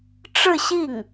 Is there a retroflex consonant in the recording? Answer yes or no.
yes